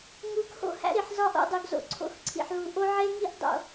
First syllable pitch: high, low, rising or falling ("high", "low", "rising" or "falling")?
rising